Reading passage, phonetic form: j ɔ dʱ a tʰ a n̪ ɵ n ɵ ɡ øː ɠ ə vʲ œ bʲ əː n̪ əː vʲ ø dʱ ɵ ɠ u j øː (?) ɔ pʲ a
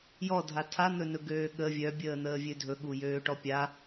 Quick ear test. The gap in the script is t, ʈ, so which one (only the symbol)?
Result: ʈ